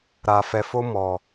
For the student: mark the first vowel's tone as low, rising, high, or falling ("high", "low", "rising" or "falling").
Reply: low